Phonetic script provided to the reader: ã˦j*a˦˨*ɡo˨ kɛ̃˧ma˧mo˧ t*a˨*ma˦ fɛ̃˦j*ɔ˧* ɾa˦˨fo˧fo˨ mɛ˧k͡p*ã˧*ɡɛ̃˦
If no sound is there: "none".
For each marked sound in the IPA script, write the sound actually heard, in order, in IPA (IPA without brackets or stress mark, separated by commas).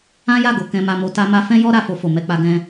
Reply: a˦˨, a˦, ɔ˦, a˧